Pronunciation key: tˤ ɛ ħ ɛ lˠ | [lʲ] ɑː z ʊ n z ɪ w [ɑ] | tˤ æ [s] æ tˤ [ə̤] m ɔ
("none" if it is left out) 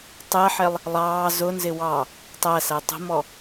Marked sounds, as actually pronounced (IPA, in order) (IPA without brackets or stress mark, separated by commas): lˠ, ɑ, s, ə̤